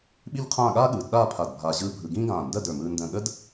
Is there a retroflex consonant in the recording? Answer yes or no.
no